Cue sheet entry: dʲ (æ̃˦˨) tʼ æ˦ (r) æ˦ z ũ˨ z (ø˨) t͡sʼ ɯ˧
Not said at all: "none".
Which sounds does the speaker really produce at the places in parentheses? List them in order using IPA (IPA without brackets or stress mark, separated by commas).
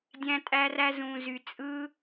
æ̃˦, r, y˨